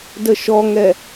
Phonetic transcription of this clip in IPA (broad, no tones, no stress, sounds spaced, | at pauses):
d ə ʃ ɔ ŋ ɛ